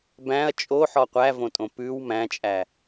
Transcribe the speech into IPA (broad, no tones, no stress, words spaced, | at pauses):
bæ̃ɐ̯ t͡ʃʼoħɔ qʷævõtʼõ pʉw mæ̃t͡ʃʼæ